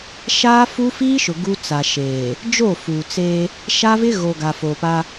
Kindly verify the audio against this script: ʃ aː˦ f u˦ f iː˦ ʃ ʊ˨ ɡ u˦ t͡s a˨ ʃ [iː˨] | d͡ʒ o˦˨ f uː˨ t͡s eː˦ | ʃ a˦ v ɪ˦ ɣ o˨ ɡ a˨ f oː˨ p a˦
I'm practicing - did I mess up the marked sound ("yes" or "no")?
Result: yes